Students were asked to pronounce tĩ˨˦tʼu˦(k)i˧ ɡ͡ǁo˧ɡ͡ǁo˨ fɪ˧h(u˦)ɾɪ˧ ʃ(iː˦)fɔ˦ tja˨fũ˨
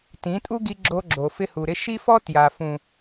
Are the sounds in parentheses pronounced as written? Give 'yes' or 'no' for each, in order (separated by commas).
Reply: no, no, no